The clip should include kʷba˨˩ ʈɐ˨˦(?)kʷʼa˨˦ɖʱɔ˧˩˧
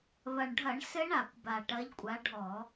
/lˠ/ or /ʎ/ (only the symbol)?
ʎ